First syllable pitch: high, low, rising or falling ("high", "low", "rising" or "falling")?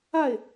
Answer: falling